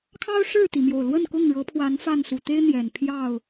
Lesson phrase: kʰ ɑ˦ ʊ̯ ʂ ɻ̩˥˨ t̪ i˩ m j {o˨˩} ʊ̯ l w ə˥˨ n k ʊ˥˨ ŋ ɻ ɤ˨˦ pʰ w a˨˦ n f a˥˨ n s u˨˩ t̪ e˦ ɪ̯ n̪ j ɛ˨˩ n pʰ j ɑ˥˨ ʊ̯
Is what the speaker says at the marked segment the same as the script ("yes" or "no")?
yes